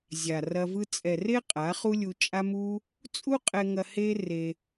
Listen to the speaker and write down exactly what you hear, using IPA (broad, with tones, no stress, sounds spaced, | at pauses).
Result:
zʲ a˨ r ɐ˧ v ɯ˦ t͡sʼ ɛ˨ r e˦ qʼ a˨˦ χ u˦ lʲ u˧ t͡ʃʼ a˦ m u˦ | t͡sʼ u˦ qʼ ɛ˧ ŋ ɐ˧ h e˦ r e˧